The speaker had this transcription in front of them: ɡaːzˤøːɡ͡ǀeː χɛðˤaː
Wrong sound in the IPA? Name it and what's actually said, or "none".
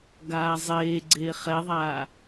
øː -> eː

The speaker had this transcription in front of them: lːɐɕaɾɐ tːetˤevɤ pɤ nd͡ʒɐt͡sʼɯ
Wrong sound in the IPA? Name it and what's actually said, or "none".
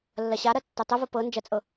ɯ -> ɤ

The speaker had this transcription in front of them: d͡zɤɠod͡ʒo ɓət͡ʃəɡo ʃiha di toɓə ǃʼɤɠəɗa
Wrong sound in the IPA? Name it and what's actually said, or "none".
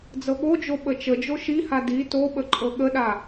ɡ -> d͡ʒ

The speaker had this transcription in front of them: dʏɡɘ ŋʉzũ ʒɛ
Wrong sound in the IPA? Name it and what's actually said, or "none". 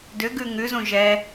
ɘ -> ʉ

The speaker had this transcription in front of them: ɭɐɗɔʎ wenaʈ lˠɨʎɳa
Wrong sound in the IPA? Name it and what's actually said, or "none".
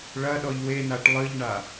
none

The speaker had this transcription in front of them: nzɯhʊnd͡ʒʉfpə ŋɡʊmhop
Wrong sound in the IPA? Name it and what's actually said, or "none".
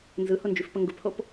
m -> p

